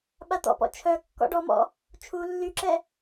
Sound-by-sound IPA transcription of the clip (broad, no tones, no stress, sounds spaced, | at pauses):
ɓ a t̪ ɔ̰ p ɔ̰ t͡ʃʰ œ kː ɔ̰ ɖ ɔ m ɔ̰ | t͡ʃʰ u lː y ǁ ɛ